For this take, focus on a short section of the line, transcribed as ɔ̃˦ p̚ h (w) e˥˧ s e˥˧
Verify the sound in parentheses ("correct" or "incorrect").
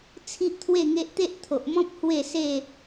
correct